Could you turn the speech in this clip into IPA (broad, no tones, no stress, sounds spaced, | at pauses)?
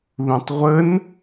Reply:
ð ũ tˤ ʁʷ ə n